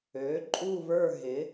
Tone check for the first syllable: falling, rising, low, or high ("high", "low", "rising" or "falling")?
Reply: rising